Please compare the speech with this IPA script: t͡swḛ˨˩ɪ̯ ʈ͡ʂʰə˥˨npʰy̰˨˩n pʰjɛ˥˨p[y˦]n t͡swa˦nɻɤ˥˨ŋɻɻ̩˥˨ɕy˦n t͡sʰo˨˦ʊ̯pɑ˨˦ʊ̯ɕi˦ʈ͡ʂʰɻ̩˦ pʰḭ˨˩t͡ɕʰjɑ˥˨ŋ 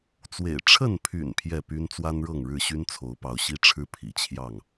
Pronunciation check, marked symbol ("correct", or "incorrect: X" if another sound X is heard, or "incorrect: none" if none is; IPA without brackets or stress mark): correct